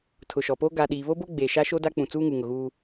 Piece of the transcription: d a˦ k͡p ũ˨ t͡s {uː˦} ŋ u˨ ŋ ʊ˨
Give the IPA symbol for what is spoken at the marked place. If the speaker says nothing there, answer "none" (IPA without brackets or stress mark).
uː˦